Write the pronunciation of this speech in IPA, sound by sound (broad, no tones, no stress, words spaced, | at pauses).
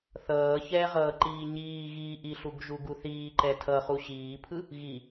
θʌːçɛːʁʌːǃiː ɲiːɣiː ʔiɬuɡʒuɡu θiːǃɛ tʰʌχu ɕiːpʰɯ | ɣi